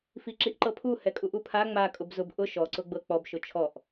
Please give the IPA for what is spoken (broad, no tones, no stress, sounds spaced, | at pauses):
f i ǁ i ʔ ǃ ɤ pʰ u h ɛ kʼ u ʔ u pʰ a ŋ͡m a kʼ ʊ b z ʊ b ʔ ʊ ʃ ɔ ǀ ʊ ɡ͡b ɤ k͡p ɔ b ʃ ʊ t͡ʃʰ ɔ ʔ